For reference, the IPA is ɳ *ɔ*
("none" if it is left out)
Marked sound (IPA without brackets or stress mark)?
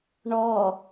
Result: ɔ